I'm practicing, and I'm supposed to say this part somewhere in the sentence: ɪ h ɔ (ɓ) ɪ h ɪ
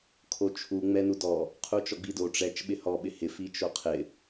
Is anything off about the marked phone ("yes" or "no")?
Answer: no